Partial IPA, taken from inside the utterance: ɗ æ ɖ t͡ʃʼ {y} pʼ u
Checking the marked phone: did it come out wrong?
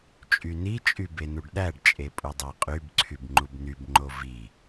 yes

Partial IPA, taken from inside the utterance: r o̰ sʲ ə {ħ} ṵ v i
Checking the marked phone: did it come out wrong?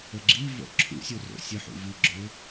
no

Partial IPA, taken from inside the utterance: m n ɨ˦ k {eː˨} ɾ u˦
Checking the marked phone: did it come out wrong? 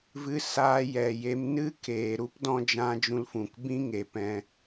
no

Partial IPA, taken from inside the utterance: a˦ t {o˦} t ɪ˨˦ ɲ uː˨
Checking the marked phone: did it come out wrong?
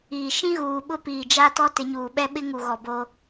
yes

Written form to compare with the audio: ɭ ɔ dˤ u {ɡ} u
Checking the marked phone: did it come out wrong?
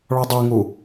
yes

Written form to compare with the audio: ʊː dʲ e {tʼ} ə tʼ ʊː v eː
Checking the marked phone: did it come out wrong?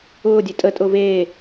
no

